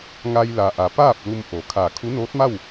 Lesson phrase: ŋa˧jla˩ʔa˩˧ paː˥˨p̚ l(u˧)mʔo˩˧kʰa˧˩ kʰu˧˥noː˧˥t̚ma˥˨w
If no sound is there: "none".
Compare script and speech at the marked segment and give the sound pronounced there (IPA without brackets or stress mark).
u˧